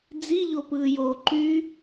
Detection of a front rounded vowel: present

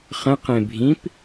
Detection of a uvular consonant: present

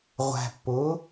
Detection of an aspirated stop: absent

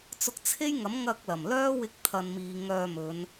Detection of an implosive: absent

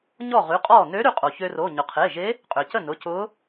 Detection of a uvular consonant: present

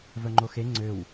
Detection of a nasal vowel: absent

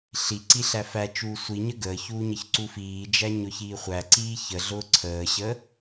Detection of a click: present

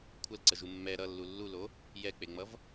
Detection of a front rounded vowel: absent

